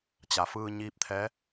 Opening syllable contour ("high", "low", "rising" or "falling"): low